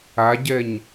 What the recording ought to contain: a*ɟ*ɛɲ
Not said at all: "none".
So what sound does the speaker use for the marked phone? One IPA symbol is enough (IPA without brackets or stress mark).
ɟ